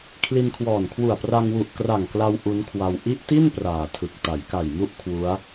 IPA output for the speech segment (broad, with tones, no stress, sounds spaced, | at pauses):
kʰ l i˧ n kʰ w ɔː˨˩ n kʰ w u˨˩ a̯ p r a˧ ŋ w u˨˩ ʔ k r a˨˩ ŋ k l a˧ w ʔ u˦˥ n kʰ w a˧ w ʔ i˦˥ ʔ t i˥˩ n p r aː˨˩ tʰ ɯ˨˩ k̚ t a˩˦ j k a˨˩ j m u˥˩ ʔ kʰ w u˦˥ a̯